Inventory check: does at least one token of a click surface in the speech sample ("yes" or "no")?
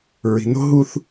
no